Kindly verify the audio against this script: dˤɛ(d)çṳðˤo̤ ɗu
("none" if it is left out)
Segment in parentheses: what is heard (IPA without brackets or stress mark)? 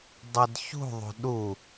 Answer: d